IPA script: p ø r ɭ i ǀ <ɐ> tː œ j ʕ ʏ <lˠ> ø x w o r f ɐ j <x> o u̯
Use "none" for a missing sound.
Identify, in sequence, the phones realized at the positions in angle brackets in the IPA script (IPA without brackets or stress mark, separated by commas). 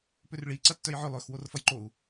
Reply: ɐ, lˠ, ǃ